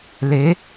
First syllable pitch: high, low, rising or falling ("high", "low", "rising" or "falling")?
rising